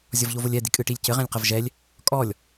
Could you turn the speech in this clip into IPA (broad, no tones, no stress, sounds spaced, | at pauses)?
zʲ ɔ v ʎ o v o lʲ ɛ d̪ i kʼ ɨ ʈ i lʲ c ɘ ʁ ɛ̃ lʲ q ɐ v ʒ ɛ lʲ | kʼ ɔ lʲ